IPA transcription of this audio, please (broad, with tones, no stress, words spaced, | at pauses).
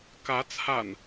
kä˨˦ t͡sʰa̰˨˩n